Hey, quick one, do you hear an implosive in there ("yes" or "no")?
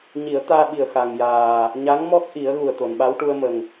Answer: yes